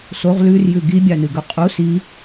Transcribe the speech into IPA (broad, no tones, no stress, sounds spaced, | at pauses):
s o ʁ l ʉ r j ʉ ɡ i bʲ a n ɨ ɡ ɵ qʼ u s i